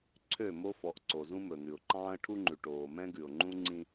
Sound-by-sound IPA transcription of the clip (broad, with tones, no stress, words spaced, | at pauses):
ǀʰø˦˨mo˦fɔ˨˦ʔ ǀo˨zũ˦mɵ˨n̪ʉ˨ʊ̯ ǃɑ̃ː˦ə̯ʈʰu˦ŋ͡ǃʉ˨ ʈoː˨mɛ̃˦ɡʉ˨ʊ̯ŋ͡ǃũ˦ ŋ͡ǀĩ˦